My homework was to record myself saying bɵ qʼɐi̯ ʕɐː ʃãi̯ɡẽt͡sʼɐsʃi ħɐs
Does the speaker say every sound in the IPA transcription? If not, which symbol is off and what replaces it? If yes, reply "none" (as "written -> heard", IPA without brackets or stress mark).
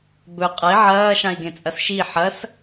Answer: none